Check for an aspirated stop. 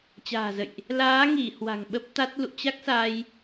absent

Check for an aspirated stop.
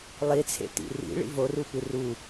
present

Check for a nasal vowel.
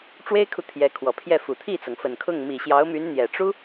absent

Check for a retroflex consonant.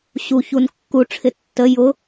present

